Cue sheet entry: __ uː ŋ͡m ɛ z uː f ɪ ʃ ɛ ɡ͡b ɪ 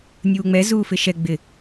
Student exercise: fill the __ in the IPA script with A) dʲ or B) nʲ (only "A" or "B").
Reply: B